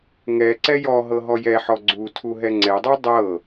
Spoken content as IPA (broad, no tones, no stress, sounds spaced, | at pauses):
ŋ ɛ ǀ ɛ j ɔ ɦ ɤ ɦ ɔ j ɛ ħ ɔ ɡ͡ǀ u tʰ u ɦ ɛ ŋ͡ǀ ɛ dˤ u dˤ ɤ